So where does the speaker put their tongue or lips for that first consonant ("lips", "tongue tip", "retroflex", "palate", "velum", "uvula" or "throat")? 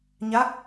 palate